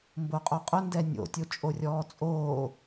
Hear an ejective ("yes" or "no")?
yes